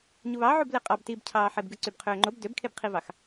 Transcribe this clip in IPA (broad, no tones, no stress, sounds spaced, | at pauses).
ɲ u β ɑ ʕ u b l e qʼ ɑ b t i b cʰ ɑː ħ e b ɡ ɯ ǀ y b qʰ øː ŋ͡ǃ o b d ø b kʰ e b qʰ i v ɑ x